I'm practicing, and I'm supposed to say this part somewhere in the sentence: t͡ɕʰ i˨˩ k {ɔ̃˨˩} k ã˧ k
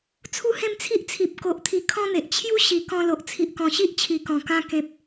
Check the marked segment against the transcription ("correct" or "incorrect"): correct